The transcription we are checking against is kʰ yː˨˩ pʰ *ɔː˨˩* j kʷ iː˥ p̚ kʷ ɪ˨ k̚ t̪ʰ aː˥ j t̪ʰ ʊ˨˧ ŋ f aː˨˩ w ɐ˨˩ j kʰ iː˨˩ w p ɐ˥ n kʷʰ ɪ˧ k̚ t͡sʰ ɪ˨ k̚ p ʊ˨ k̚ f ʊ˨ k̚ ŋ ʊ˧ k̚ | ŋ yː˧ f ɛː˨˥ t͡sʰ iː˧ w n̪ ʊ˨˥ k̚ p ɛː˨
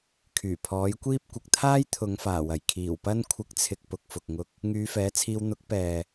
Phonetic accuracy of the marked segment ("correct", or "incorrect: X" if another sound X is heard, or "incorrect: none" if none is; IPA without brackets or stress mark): incorrect: ɔː˨˥